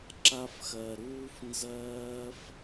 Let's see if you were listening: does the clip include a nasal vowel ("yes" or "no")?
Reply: no